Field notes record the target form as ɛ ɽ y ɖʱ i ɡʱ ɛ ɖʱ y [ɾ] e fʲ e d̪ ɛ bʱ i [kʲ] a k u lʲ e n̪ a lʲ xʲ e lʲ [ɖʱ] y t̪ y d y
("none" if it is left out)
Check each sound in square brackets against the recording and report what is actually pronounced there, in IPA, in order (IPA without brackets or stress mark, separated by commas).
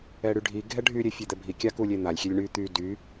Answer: ɾʲ, kʲ, ɳ